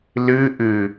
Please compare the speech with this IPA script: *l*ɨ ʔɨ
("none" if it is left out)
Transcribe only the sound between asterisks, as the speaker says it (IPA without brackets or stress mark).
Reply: l